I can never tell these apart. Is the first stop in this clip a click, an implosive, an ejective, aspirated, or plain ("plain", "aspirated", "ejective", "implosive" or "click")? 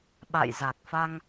implosive